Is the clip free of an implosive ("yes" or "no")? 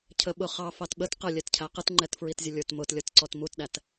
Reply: no